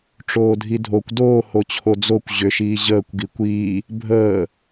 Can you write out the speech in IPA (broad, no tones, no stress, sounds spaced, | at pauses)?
ʈ͡ʂ oː dʱ i dʱ o kʷ d oː h o t͡ɕʰ o d͡z o kʷ ʑ ʏ ʃ iː ʑ əː kʷ ɡ i kʷ iː | bʱ əː